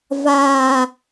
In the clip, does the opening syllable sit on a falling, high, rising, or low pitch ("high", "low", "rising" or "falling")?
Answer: falling